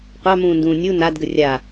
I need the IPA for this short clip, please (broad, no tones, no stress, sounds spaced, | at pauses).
qʷ ɑ m ũː n d ũː nʲ u n a d ɡ ə rʲ a